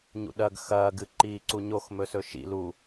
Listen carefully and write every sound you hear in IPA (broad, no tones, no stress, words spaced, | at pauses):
ɲṵɗɐɡ xɐː ɡɨǃiːǀuɲox mɵsɵʃḭ lu